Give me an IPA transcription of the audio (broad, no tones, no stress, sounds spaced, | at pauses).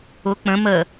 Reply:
ʊ k͡p ə̃ m ə